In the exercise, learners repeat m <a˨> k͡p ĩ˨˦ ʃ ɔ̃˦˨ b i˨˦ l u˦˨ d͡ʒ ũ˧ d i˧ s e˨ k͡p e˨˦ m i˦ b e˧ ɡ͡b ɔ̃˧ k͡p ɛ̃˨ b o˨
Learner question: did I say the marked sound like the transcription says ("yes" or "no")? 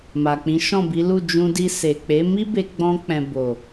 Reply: yes